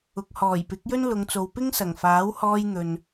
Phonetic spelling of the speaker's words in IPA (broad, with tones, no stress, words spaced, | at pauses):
ʊ˨k̚hɔː˨˩jpɪ˨˥k̚jɵ˥n lʊ˨˧ŋt͡so˨w pɪ˥ŋsɐ˨˩ŋfaː˨˥whɔː˧j n̪ɵ˨n